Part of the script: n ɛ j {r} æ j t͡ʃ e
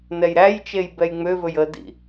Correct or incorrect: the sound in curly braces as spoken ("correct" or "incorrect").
incorrect